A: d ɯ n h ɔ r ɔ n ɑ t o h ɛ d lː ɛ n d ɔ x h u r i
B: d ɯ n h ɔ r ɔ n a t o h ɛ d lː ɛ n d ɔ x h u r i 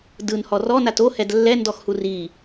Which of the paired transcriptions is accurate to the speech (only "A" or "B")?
B